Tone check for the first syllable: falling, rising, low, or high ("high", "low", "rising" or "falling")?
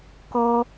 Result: high